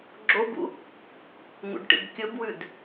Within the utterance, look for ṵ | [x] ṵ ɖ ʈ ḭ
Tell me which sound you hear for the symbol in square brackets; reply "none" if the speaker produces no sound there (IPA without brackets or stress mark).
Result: ŋ